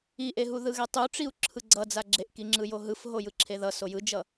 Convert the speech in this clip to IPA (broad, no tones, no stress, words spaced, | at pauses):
iʔeɦu ðɯɣɛtˤuʈ͡ʂiu̯ ǁʰɯɡ͡ǀʌ d͡zaɡ͡ǁeʔkiŋ͡ǁɯ joɦɯf ɦojɯǁʰeðʌ sojɯd͡ʒʌ